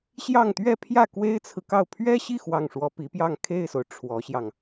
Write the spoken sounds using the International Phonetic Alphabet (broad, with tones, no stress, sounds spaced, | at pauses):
ɕ j ɑ˥˧ ŋ t̪ ɥ ɛ˥˧ pʰ j ä˥˩ k w e˥ ɪ̯ t͡sʰ ɹ̩˨ k ɑ˥˩ ʊ̯ pʰ ɥ ɛ˥ ɕ i˥˧ x w ɑ˥˩ ŋ ʂ w ɔ˥ p i˧˥ p j ɑ˥˧ ŋ kʰ e˥˩ ɪ̯ s o˩ ʊ̯ ʈ͡ʂʰ w ɔ˧˥ ɕ j ɑ˧ ŋ